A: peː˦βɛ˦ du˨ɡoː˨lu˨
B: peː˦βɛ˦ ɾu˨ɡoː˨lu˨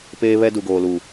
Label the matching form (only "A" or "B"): A